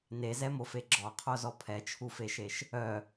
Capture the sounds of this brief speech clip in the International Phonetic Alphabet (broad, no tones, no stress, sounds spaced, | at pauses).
n e z ɛ m o f e ɡ͡ǁ ɔ qʰ o z ɔ pʰ ɛ t͡ʃʰ u f e ʃ e ʃ | œ